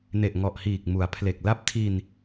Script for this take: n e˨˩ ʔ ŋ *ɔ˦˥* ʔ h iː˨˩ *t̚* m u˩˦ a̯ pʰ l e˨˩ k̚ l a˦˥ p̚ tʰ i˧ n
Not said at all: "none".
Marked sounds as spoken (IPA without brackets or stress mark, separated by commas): ɔ˨˩, k̚